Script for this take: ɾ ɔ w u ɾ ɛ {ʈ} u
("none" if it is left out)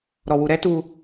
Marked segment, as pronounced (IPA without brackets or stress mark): t